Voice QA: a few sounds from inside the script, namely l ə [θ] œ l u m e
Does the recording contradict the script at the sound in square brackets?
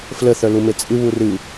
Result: no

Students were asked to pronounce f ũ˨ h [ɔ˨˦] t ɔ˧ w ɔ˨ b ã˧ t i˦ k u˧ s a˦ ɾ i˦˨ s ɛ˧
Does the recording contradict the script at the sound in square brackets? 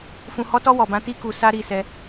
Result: no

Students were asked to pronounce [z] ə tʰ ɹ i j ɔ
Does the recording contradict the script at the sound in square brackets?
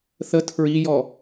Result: yes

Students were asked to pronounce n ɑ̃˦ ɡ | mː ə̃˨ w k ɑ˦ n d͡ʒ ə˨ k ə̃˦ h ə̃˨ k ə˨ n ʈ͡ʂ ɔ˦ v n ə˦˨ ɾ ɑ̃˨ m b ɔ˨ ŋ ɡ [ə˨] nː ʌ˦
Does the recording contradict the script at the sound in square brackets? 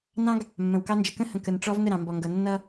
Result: yes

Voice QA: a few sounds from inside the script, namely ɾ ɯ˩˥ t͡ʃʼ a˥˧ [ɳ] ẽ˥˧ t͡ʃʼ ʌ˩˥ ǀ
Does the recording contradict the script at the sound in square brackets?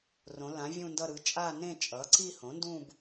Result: yes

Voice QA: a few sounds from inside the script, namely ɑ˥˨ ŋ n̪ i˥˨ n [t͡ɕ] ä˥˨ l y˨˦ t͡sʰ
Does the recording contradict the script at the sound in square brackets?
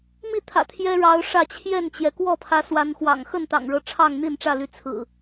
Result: yes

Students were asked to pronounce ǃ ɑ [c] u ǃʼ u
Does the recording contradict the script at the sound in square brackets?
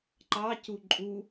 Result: no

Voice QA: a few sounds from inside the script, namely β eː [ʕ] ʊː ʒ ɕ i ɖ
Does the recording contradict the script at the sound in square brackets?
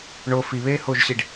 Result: yes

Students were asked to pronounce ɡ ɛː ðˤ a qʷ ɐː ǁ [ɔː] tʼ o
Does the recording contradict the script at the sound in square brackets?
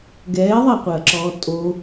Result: no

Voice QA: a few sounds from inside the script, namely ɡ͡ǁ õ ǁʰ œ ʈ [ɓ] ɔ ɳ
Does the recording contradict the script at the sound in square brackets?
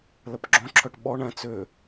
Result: no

